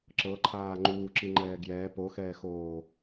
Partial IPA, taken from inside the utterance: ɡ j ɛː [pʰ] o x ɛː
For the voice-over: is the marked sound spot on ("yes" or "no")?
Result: no